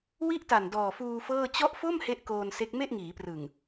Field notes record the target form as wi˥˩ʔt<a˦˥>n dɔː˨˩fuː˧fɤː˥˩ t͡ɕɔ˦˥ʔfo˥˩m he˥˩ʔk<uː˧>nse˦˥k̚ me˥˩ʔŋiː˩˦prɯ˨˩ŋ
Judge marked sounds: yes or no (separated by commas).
no, no